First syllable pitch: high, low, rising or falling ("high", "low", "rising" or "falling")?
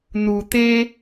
low